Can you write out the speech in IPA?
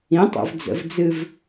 ĩ tˤ o̰ v d͡z ə̰ v d͡z ɨ v

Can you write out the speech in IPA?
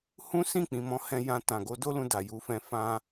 h ũ˦ s ĩ˦˨ k͡p ĩ˨ m ɔ̃˨˦ h ɛ̃˧ j ã˧ t ã˨ ɡ o˨˦ d o˦ l ũ˧ d a˨ j u˨˦ f ɛ̃˧ f ã˧

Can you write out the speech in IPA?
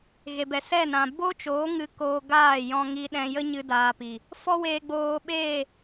ɣ e˨ b ɛ˨ s ɛ˦˨ n ã˨ b o˦ t͡ʃ oː˨˦ ŋ ɨ˧ k oː˧ ɡ aː˦˨ j ɔ̃˧ ŋ i˧ ɗ ɛ̃˧ j ə˦ ɲ ɨ˦ d aː˧ p i˨ | f ɔ˦ w eː˧ ɡ͡b oː˧ ɓ eː˦˨

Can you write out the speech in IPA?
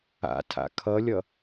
a̰ tʰ a̰ kʰ ʌ lʲ ʌ

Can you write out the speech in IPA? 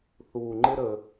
θ uː˧ ŋ͡ǃ ɪ˥ ɾ ə˧

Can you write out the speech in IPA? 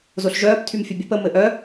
z o ɬ ʒ œː p tʰ y m fʲ ɘ bʲ ɘ p ə m ɘ ʔ œ

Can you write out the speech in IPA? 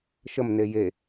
ʃ ə m n e j e

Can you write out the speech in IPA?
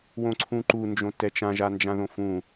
w õ ǀʰ ũ ǃ u n d͡ʒ õ t ɛ t͡ʃ ã ʒ a n d͡ʒ ã ð õ f ũ

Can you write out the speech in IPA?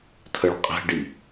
tʰ ə ɭ qʼ ɛ̤ ɖ i

